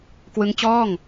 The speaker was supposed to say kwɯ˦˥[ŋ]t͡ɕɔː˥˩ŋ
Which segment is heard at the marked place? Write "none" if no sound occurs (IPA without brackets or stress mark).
ŋ